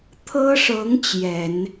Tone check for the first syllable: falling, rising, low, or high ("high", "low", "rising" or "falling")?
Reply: high